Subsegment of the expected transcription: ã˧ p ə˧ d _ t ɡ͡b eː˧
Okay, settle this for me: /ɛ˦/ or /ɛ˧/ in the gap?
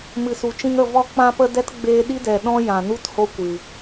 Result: ɛ˦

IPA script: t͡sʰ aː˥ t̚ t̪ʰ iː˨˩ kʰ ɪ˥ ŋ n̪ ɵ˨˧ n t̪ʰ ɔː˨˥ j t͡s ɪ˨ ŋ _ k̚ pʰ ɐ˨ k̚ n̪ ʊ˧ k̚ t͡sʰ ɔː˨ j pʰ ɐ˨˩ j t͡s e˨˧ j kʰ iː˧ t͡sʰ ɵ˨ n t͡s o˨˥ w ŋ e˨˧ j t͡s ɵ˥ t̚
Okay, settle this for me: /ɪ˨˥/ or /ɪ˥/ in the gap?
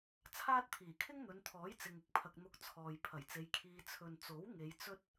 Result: ɪ˥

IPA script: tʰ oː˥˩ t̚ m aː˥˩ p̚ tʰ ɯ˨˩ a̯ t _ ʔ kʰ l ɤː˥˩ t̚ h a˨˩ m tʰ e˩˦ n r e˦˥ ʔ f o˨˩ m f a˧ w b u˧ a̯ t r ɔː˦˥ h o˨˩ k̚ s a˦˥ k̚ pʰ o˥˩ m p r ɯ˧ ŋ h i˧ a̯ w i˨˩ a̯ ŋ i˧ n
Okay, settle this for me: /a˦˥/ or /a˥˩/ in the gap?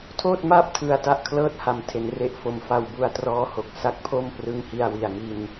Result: a˥˩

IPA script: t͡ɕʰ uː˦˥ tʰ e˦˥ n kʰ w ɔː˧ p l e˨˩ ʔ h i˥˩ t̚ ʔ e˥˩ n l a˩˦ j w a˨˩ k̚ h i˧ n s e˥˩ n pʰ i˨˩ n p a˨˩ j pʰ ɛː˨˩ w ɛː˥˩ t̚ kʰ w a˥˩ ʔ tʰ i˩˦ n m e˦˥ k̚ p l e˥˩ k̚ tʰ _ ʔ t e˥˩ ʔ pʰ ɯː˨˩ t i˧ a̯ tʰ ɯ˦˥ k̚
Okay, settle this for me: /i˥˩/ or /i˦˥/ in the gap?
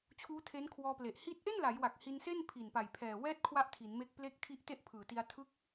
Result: i˦˥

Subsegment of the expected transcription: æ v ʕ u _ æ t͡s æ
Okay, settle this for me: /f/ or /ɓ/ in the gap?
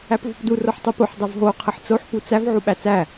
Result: ɓ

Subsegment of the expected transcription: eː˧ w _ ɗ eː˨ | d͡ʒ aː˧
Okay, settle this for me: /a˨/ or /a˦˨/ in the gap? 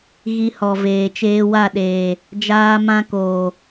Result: a˦˨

